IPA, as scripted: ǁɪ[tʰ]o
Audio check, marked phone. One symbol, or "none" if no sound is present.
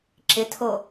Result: tʰ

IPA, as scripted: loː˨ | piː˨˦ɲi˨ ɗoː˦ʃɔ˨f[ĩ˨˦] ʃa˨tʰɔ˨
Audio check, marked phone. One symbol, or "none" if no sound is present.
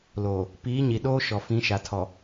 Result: ĩ˨˦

